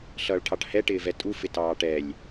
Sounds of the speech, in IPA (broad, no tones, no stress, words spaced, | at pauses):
ɬʌːɭʈʰɑʈhɛ ʈɪːvɛtʼu fɪtɑːʈɛlʲ